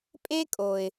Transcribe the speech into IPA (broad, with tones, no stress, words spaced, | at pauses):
pʼe˦kʼo˨ɪ̯